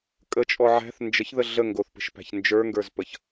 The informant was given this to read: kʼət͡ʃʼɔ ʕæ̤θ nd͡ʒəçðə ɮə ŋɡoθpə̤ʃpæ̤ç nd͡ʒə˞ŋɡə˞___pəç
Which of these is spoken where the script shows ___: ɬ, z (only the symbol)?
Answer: z